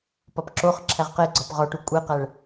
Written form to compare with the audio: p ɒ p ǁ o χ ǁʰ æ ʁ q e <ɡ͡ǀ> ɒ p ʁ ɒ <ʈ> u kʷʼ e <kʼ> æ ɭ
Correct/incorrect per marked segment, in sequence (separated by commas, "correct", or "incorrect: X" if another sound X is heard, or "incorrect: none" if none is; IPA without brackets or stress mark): correct, correct, incorrect: q